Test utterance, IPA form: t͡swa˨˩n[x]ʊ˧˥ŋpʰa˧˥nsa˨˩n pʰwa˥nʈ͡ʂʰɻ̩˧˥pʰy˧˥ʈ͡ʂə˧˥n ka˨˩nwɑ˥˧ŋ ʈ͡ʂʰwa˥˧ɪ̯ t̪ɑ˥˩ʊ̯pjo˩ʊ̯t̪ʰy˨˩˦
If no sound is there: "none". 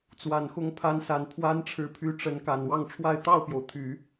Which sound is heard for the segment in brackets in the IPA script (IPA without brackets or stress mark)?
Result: x